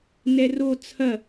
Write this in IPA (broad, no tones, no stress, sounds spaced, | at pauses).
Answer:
n ɛ r o t͡sʰ ɐ